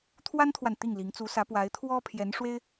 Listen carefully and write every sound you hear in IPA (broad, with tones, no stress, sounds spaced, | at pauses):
t̪ʰ w a˥ n t̪ʰ w a˨ n t̪ i˥˩ ŋ l i˧˥ ŋ t͡s u˧˥ s ä˧˥ p w a˧˥ ɪ̯ t̪ʰ w ɔ˥ pʰ j ɛ˧˥ n ʂ w e˥ ɪ̯